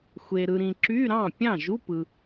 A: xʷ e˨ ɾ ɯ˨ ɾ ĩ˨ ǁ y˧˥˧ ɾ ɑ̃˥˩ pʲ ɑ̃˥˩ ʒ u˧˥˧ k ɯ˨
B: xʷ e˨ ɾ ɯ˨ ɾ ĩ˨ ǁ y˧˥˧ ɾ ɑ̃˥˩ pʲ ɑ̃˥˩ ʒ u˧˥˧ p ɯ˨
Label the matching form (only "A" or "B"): B